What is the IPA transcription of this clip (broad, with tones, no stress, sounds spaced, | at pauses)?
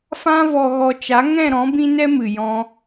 f ã˧ v ɔ˨ ɣ ɔ˨ t͡ʃ a˨˦ ŋ ɛ̃˦˨ ɾ ɔ̃˨˦ b ĩ˦ n ɛ˦ m ɨ˨ j ɔ̃˧